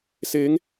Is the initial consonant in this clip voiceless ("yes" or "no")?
yes